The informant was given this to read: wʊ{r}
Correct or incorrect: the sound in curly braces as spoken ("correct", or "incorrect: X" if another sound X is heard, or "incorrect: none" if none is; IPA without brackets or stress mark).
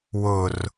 correct